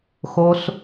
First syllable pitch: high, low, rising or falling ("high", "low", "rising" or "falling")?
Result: low